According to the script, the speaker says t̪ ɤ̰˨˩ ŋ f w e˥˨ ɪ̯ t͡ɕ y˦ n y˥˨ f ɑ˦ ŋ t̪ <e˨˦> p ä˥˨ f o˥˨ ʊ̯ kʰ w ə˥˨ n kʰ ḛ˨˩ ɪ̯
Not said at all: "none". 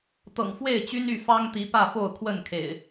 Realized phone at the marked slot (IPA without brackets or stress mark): i˨˦